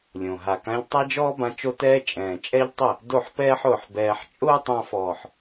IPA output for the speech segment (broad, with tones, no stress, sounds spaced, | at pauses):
lʲ õ˨ ɦ a˨ k ã˧ ʎ tˤ a˦ d͡ʒ ɔː˦ b ã˧ t͡ʃ o˦ t ɛː˦ t͡ʃʼ ɛ̃ː˨ t͡ʃʼ ɛ˦ ʎ tˤ ɪ˦˨ | d o˦˨ ħ p ɛː˦ ħ ʊː˨ ħ b ɛː˧ ħ t͡ʃʼ ʊː˦ tˤ ã˧ f ɔː˨ ħ